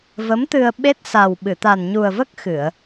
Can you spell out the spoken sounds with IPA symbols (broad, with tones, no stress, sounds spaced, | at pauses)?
v ə˧˥ m t̪ ɨ˧ ə̯ ɓ e˦˥ t̚ s a˨˩ w ɓ ɨ˨˩˨ t̪ a˨˩ n ɲ u˨˩ ə̯ v ə˦˥ k̚ x ɨ˨˩˨ ə̯